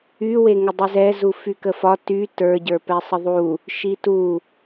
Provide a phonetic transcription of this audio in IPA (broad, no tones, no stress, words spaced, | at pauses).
y weŋədˤizɛ zufykəfɒ ty tə˞ ɟə˞pɛsˤəðˤu | ʃitu